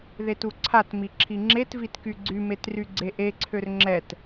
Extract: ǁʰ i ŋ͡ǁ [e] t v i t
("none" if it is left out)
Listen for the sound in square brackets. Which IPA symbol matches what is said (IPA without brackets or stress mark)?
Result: e